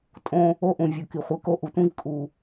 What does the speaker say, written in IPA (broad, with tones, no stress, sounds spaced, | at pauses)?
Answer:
tʼ õ˦ | o˦ ʔ ũ˨ vʲ u˨ k i˨ χʷ i˨ k o˦ ʔ u˨ tʷ ĩ˦ v kʼ u˨